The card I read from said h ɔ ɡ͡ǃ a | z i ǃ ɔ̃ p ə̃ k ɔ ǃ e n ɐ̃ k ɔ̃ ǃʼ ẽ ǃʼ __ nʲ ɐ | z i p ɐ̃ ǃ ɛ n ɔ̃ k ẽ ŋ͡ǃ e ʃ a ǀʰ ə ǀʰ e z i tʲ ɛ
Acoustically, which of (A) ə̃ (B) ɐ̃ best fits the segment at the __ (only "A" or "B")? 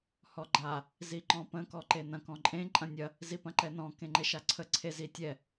B